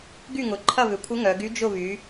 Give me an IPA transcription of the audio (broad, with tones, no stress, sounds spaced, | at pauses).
ɡ y˥˨ ŋ ʊ˨˩ ǃʰ ɐ˥˨ β ʏ˨˩ kʷʰ ɪ˧˥ ŋ œ˩˧ ɡ y˧˥ d͡ʒ ʊ˥˨ β y˩˧